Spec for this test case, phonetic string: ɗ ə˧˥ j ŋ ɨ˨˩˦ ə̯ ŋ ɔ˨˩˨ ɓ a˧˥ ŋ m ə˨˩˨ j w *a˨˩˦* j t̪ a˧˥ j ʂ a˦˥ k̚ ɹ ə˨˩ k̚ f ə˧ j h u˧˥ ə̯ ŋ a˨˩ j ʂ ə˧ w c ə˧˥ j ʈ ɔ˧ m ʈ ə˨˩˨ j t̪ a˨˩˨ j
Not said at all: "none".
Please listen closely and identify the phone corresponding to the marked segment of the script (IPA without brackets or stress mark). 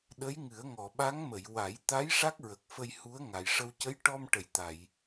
a˨˩˦